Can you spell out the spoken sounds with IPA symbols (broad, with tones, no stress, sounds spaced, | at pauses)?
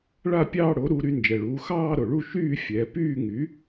ɭ a˥˧ pʲ ɑː˥˧ ɽ o˩˥ ɾ u˩˧ ɾ y˩˧ n d͡ʒ ɛ˩ ɭ uː˩˧ x ɑː˥˧ ɾ o˩ ɭ u˥˧ ʃ yː˥˧ fʲ ɛ˩˧ p yː˥˧ ŋ y˩˥